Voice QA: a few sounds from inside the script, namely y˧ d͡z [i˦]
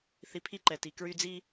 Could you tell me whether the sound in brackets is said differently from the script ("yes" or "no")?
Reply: no